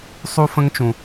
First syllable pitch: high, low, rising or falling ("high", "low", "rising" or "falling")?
high